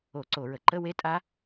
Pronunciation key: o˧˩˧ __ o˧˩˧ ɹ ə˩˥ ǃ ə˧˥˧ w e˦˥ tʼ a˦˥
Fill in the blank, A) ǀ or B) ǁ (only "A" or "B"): A